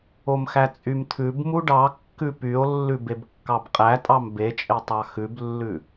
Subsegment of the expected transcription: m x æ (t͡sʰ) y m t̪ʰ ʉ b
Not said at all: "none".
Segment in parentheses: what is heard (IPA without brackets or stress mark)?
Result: t͡sʼ